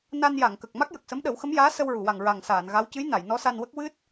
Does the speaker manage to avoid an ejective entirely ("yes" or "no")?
yes